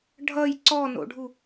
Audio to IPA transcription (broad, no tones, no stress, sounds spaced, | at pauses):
ɖʱ ʌ j ǀ ɔ n o̰ ɖʱ u